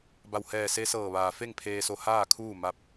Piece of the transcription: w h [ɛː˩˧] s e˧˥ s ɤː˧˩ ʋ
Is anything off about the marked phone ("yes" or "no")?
yes